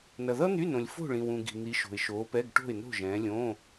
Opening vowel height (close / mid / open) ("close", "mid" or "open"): mid